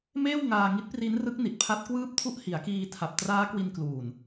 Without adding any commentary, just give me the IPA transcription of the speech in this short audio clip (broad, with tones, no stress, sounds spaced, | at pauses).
m eː˥˩ w ŋ aː˧ ŋ i˦˥ t̚ p r i˦˥ n r ɯ˦˥ k̚ n i˨˩ t̚ pʰ a˦˥ t̚ k w ɯː˥˩ p̚ tʰ u˥˩ ʔ h i˩˦ a̯ k iː˧ tʰ a˨˩ p̚ t r aː˦˥ k w i˧ n k l uː˨˩ n